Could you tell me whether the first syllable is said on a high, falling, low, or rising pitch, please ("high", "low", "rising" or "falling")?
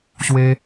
high